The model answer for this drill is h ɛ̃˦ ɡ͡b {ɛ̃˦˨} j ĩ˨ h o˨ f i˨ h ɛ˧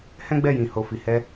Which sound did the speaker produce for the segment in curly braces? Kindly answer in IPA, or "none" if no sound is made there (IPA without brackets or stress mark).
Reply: ɛ˦˨